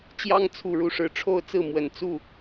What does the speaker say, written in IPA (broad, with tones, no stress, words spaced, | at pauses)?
t͡ɕjɑ˥ŋt͡sʰu˨˩ɻu˥˩ʂɻ̩˧˥ ʈ͡ʂʰo˥ʊ̯t͡sɹ̩˥˩ mwə˨˩n t͡su˥˩